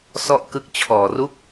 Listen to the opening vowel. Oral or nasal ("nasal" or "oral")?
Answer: oral